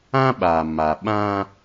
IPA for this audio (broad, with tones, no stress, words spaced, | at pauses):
ã˦ɓa˨ma˨ ɓã˦